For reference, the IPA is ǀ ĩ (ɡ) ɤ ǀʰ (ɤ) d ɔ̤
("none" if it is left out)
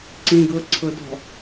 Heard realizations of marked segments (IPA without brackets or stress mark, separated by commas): ɡ, ɤ